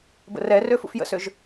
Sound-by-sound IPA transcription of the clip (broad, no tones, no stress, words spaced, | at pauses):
bə̰rɛrø fṵfjə̰søʒ